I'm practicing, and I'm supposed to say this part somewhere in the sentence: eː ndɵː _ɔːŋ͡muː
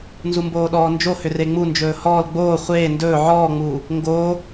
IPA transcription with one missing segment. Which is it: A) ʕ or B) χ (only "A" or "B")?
A